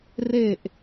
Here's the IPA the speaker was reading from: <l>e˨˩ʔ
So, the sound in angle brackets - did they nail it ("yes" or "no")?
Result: no